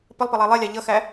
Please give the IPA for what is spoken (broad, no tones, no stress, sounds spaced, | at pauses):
p ə lˠ p ə lˠ æ lˠ ɛ lʲ ɑ ʎ ʌ x æ